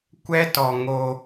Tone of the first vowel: high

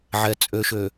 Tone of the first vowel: low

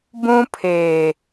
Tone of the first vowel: high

